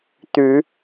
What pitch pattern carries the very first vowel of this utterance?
rising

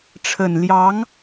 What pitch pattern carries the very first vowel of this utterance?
low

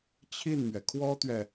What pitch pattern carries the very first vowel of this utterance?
falling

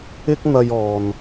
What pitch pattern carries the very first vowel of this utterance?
high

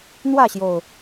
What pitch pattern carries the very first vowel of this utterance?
falling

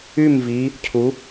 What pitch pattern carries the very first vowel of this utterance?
falling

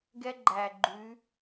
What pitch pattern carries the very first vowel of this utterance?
high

